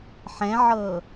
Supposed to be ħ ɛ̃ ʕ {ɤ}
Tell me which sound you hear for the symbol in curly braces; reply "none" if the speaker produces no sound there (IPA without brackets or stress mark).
ɤ